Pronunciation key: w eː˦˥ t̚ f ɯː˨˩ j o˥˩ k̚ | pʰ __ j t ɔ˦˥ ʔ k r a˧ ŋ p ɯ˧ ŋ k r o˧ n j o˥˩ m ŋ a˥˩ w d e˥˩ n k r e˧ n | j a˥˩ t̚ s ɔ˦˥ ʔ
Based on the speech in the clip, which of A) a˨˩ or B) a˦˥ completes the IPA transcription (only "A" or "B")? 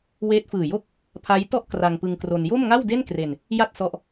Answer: B